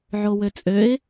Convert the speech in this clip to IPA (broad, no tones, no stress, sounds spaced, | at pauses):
ʕ o w ø t͡sʼ ø ɪ̯